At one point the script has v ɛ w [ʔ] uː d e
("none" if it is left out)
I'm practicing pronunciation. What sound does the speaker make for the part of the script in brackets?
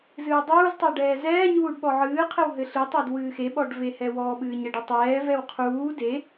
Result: qʰ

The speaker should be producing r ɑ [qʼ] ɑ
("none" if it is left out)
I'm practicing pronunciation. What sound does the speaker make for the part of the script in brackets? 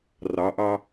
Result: ʔ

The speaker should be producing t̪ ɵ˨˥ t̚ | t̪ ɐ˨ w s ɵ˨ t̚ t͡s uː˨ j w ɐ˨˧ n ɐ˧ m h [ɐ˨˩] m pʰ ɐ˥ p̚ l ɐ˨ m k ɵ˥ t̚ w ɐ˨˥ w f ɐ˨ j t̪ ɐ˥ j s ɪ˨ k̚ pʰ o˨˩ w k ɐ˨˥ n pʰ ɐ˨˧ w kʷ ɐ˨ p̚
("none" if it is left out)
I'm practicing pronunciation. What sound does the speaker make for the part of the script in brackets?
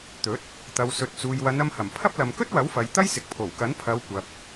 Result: ɐ˨˩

